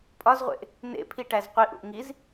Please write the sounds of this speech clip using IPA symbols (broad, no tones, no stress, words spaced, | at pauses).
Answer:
pʼɒzʁʷḛʔ | nḛpʰiʈæz qʷiʔṵʔ ŋiz